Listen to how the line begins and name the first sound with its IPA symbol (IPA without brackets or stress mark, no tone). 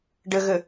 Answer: ɖ